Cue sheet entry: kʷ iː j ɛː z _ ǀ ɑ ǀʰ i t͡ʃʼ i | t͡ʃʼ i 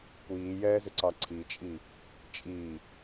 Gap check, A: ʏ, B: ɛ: A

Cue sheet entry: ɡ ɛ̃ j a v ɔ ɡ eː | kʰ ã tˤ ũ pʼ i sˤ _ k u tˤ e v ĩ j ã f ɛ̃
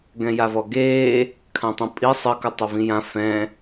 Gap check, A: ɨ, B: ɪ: A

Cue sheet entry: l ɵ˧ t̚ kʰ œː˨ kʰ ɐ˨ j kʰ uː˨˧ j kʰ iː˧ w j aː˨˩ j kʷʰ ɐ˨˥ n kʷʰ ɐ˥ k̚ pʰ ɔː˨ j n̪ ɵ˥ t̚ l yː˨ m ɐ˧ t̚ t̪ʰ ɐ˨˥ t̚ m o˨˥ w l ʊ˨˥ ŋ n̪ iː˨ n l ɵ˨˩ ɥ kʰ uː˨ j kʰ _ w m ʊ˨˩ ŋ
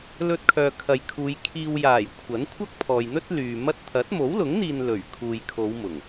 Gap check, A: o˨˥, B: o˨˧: B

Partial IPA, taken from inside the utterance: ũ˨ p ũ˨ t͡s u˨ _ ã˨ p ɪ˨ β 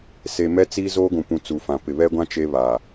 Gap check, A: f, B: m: A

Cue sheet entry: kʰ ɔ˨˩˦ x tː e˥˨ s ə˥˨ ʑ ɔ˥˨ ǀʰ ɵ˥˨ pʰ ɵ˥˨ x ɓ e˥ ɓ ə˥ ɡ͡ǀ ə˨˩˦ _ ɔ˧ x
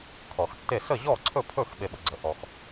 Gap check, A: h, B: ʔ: B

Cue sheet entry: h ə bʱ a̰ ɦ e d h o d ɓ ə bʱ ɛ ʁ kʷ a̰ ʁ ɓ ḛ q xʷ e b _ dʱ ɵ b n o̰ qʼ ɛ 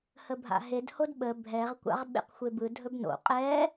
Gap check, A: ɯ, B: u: A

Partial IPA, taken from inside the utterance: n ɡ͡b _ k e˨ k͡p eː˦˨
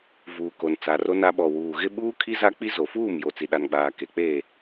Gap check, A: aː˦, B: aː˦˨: A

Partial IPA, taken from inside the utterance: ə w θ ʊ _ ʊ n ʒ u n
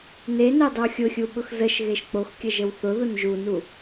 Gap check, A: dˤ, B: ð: B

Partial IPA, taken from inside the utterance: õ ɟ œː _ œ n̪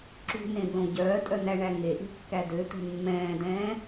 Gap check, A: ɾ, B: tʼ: B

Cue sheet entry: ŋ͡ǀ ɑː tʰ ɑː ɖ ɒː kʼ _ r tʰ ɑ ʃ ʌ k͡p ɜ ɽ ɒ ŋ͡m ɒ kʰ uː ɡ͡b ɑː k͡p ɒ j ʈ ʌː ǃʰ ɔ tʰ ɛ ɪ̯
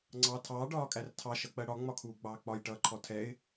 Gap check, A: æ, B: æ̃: A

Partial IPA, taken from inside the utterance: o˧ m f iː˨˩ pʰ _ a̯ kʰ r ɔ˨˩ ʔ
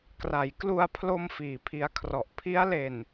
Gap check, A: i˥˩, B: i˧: B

